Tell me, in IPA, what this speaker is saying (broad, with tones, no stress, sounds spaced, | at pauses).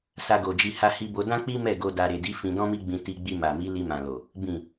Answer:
s a˧ ɡ o˨ d͡ʒ i˧ h a˧ h i˧ b o˧ d ã˦ k͡p i˦ m ɛ˦˨ ɡ o˧ d a˧ ɾ e˨ d i˨˦ f ĩ˧ d ɔ̃˦ m i˦ ɡ͡b ĩ˧ t i˧ ɡ͡b i˧ m a˨ m i˨˦ l i˧ m ã˨ l o˨ | b ĩ˨